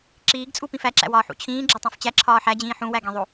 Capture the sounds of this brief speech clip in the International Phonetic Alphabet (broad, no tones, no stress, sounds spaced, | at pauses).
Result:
ǁ iː ɡ t͡sʼ u p ĩ f æ ǁ æ̰ w ɒː ħ ṵ t͡ɕʰ ĩː ɡ͡ǁ ɒ tˤ ũ f t͡ɕ æ ǁʰ ɒː ħ æ d͡ʑ ĩː ħ ũ w æ ɡ ĩ ðˤ o